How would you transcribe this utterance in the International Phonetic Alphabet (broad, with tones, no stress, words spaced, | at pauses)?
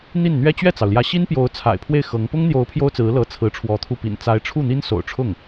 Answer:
n̪i˥˩nn̪ɥɛ˥ t͡ɕɥɛ˥˩t͡sɑ˩ʊ̯ljä˧˥ ɕi˥npjo˧˥ʊ̯ t͡sʰa̰˨˩ɪ̯pʰwe˥˩ɪ̯ xɤ˧˥ŋ pʊ˥ŋn̪jo˧˥ʊ̯ pʰjo˥ʊ̯t͡sɹ̩˧˥lɤ˧˥ t͡sʰɹ̩˧˥ʈ͡ʂʰwɔ˧˥t̪ʰu˥˩ pḭ˨˩nt͡sa˧˥ɪ̯ʈ͡ʂʰu˥˩ n̪i˥nso̰˨˩ʊ̯ʈ͡ʂʰʊ˥˩ŋ